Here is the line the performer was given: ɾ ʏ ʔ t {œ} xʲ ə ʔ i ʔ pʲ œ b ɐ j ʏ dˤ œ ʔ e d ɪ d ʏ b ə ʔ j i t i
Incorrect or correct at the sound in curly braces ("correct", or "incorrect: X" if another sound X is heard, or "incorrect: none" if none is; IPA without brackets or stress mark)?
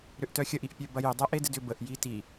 correct